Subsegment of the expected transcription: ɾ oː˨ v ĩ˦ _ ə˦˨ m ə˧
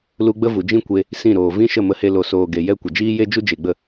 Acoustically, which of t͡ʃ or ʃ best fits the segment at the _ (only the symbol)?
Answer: ʃ